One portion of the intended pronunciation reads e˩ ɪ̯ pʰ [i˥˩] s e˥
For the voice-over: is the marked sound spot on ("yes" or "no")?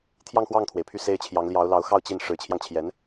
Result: no